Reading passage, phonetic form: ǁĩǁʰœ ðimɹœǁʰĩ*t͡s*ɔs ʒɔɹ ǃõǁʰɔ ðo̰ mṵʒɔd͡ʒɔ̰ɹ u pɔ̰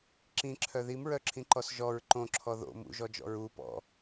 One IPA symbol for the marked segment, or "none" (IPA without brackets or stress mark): ǃ